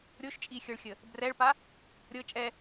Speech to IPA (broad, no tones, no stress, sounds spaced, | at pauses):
ɾʲ o ʃ t͡ʃʼ i xʲ ɤ ɭ xʲ ə | b r ɛ ɭ p a | ɾʲ ɤ t͡ʃʼ ɛ